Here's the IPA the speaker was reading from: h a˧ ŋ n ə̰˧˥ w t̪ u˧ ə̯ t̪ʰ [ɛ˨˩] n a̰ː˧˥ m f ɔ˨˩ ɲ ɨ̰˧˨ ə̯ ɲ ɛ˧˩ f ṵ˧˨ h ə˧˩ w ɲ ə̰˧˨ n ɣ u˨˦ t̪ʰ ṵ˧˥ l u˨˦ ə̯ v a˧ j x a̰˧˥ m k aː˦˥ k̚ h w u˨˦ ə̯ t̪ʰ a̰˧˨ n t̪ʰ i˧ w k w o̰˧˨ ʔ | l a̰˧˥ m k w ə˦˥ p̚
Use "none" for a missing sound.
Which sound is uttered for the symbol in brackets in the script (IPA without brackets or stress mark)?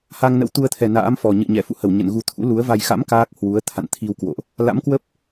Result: ɛ˨˩